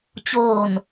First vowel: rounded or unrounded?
rounded